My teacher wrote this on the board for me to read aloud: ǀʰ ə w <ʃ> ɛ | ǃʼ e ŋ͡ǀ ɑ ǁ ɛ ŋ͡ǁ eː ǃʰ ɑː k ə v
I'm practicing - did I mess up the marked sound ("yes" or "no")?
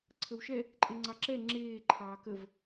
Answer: no